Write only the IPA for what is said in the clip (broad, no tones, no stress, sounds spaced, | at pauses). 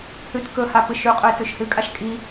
h ʉ t k ɵ h a p ɨ ʃ ʉ qʼ ɵ ɪ̯ t ʉ ʃ h ɨ kʼ a ʃ kʼ i